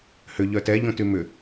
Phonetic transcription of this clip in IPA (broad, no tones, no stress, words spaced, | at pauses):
hʏ ʎœtɛ ʎõtymʏ